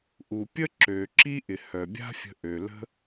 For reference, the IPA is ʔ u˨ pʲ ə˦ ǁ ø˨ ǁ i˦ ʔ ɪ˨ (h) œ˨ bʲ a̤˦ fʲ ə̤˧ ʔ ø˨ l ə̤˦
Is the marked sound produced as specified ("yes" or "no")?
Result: yes